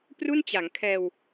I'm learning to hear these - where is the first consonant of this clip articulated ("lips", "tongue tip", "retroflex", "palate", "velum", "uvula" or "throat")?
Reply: lips